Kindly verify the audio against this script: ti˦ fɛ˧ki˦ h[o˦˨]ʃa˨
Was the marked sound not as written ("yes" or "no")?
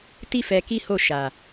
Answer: no